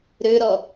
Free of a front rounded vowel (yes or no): no